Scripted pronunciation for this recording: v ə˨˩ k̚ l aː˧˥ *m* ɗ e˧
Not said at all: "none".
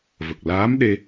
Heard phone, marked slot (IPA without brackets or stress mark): m